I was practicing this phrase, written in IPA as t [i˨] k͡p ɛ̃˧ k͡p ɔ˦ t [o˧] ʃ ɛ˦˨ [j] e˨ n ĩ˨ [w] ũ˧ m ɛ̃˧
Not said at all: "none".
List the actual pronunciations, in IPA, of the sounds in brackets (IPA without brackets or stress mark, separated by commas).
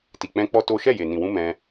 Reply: i˨, o˦, j, w